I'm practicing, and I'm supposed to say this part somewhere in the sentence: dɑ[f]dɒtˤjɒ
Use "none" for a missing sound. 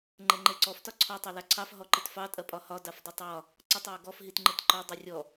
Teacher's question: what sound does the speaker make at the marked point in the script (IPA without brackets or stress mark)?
f